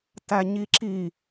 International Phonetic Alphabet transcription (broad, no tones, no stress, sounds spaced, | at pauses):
t æ ɲ i ǁ i